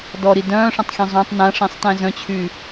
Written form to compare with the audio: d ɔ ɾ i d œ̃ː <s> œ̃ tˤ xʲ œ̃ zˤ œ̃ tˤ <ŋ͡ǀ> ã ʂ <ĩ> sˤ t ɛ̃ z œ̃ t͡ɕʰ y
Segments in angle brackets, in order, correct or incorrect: incorrect: ʂ, incorrect: n, correct

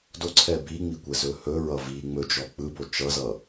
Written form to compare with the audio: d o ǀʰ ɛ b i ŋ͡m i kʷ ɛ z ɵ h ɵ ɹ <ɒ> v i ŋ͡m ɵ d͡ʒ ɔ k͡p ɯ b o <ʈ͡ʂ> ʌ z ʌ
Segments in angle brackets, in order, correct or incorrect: incorrect: ʌ, incorrect: t͡ʃ

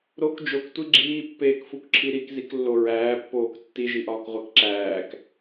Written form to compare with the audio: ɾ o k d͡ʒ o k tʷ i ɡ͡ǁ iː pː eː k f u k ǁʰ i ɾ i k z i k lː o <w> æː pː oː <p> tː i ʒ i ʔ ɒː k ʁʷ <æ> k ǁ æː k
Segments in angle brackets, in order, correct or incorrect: incorrect: ɹ, incorrect: k, correct

